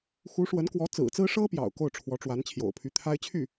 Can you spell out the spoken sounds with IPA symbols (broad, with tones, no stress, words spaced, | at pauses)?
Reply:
xu˧˥ʂwə˧˥nkwɔ˧˥ t͡sɹ̩˨˩t͡sɹ̩˥ ʂɤ˥pjɑ̰˨˩ʊ̯ ko˥˩ʊ̯ʈ͡ʂʰwɔ˧˥ʈ͡ʂwa˧˥n t͡ɕʰjo̰˨˩ʊ̯pʰy˧˥t̪ʰa˥ɪ̯ t͡ɕʰy˥˩